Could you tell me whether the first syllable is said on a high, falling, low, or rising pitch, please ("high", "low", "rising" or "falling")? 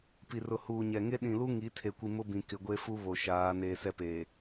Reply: low